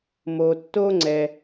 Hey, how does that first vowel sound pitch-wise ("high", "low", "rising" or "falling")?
low